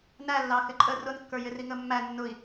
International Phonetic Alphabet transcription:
n æ lː ɑ x ɪ ǃʼ ə r ʊ n kː ə˞ j ɪ r i ŋ ə mː æ nː ʊ i̯

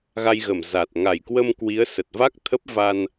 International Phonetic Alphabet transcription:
ɣ a˧ j ɣ ə˧˩ m z a˨˩ t̚ ŋ a˧˩ j k w ə˧ m k w i˨˦ ə̯ s ə˨˩ t̚ v a˦˥ k̚ t̪ʰ ə˦˥ p̚ v a˧ n

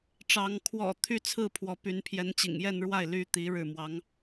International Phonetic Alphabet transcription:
ʈ͡ʂ ɑ˧˥ ŋ kʰ w ɔ̰˨˩ t̪ʰ y˥˧ t͡sʰ ɹ̩˥˩ pʰ w ɔ˧˥ p y˧˥ n pʰ j ɛ˧˥ n t͡ɕ ḭ˨˩ ŋ j ɛ˥˧ n ɻ w a˥˩ ɪ̯ l y˥ t̪ i˧˥ ɻ ɻ̩˥˩ m w ɑ˧˥ ŋ

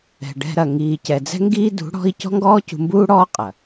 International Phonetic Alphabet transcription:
ɛ̤˨ ɖ ɛ̤˧ ɾ ɐ˨ ŋ iː˨ c ɛ˨ d͡z ɛ̤˦ ŋ ɡ iː˦ d ṳ˨˦ ɽ ɔ̤˦ i̯ c ɔ̤˦ ŋ ɡ ɔː˦ c ṳ˧ m b uː˦ ɽ ɔː˦ qʼ ɐ˨

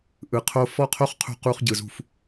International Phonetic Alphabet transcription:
ʔ ɯ˨ qʰ o˦ f ɔ˦ qʰ o˦ χ qʰ ṳ˦ q u˦ χ ɟ ɯ˨ z ṳ˦˨ f

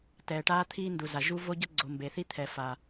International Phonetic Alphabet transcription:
t ɛː˨ ʈ aː˦ t̪ʰ iː˦ n d u˨ z a˨ ʒ u˦ v o˦ ɟ ʌ˦ ɡ͡ǀ o˨ m b e˨ θ i˦ t̪ʰ ɛ˨ f a˨

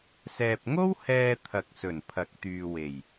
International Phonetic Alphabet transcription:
s ɛː˨ p̚ ŋ o˥ w h ɛː˧ t̪ʰ ɐ˨ k̚ s ɵ˨˩ n pʰ ɐ˨˥ k̚ t̪ yː˨ w e˨˩ j

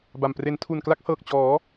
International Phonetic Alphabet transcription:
b a˨˩ m p r e˩˦ n tʰ u˨˩ n k l a˦˥ k̚ h ɤː˨˩ k̚ t͡ɕ ɔː˩˦

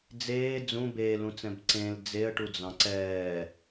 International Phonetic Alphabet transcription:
d͡z eː d͡z ũ b eː l ũ t͡s ɛ̃ b ǀ ẽ l d͡z e ə̯ ʈ u d͡z ɑ̃ ǀ ɛː

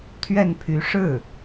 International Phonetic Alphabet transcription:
t̪ʰ ɥ ɛ˥˩ n pʰ y˧˥ ʂ ɻ̩˥˩

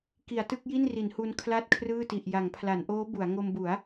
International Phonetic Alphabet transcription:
k i˩˦ a̯ t ɯ˥˩ k̚ j i˥˩ n r i˩˦ n h u˧ n kʰ l a˥˩ t̚ kʰ r ɯː˥˩ t i˨˩ ʔ j a˩˦ ŋ pʰ l a˩˦ n ʔ oː˦˥ b u˩˦ a̯ ŋ o˧ m b u˩˦ a̯

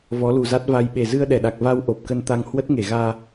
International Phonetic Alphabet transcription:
v ɔ˨˦ l u˨˩ z a˦˥ t̚ v a˧ j ɓ e˨˩ z ɨ˧ ə̯ ɗ ɛ˧˩ ɗ a˨˩ k̚ v a˧ w ʔ o˨˩ p̚ k ə˧ n t̪ a˧ ŋ h w ə˦˥ t̚ ŋ e˧˩ ɣ aː˧

